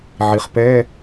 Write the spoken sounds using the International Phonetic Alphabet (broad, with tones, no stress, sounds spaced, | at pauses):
ʕ i˩ χ p ɛ˧˥˧